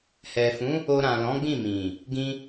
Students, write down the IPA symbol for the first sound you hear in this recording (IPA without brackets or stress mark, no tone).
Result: h